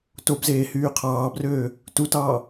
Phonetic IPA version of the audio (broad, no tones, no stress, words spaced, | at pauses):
tobzeː hyːqʰɑːbrøː | tutɑː